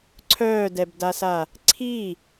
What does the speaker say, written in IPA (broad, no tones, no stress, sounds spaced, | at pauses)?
ǀʰ œː d ɛ b d a s a | ǀʰ i